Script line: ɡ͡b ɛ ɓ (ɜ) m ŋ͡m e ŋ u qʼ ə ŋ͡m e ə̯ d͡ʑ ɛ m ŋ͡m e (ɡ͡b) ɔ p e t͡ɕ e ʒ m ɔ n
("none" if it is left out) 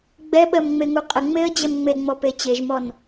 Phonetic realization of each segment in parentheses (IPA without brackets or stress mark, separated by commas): ɜ, ŋ͡m